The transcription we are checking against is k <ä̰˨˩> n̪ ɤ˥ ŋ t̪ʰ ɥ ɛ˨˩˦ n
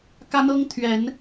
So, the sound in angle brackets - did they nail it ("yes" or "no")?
no